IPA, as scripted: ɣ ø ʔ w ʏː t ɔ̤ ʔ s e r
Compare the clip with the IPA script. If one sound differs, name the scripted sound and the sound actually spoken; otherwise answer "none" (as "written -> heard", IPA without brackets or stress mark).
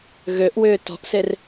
none